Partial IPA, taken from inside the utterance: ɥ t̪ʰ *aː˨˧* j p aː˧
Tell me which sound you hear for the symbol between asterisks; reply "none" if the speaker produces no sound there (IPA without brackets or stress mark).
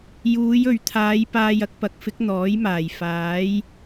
aː˨˧